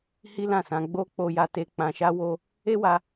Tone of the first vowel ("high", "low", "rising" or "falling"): high